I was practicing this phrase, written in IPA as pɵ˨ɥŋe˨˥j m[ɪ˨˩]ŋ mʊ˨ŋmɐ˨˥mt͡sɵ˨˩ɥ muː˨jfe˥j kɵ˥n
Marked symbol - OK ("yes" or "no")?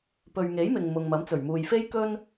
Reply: no